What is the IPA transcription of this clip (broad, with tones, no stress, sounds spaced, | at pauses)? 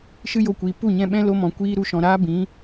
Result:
ʃ ɨ˦ j o˧ kʷ iː˨ p u˦˨ ɲ ɛ̃˧ ɓ ɛ̃˦ l o˧ m ɔ̃˨ kʷ iː˦ ɾ u˧ ʃ ɔ̃˨ ɾ aː˦ b ĩ˨˦